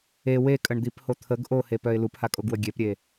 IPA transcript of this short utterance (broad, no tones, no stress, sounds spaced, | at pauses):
e w e kʼ ə ɳ d̪ i p h o t̪ʰ ə ɡ ʔ o h e p œ ɪ̯ l u p h a kʼ o ɡ w ə ɡʲ e p ɾʲ e